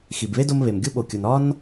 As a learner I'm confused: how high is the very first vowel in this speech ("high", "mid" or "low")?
high